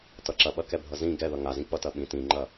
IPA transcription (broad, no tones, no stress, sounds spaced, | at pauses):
t ʌ ǁ ɐ ɓ ɐ k ɛ bʱ ʌ z ĩ ɡ ɛ ð ʌ ŋ a z ĩ k͡p ʌ t ɐ ɓ ĩ t ĩ ŋ͡ǃ ɐ